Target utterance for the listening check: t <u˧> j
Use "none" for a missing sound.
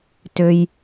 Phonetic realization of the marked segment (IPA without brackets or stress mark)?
ø˧